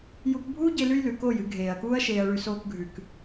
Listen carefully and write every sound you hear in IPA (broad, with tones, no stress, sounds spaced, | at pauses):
j u˧ k bʱ uː˦ ɟ e˧ l ʉ˦ j l ʉ˨ k oː˦˨ j ɨ˧ ɡʱ eː˨ ɐ̯ k uː˦ ɐ̯ ʃ eː˧ ɐ̯ ɭ ʉ˧ s oː˧ k ɡʱ ʉ˨ k